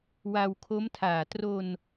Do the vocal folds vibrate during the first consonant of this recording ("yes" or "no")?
yes